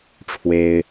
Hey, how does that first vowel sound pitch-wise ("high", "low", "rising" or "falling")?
high